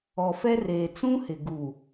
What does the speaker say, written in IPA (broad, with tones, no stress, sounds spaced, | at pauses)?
ɔ˨ f ɛ˦ r eː˨ t͡s ũ˦ h ɪ˨ ɡ uː˨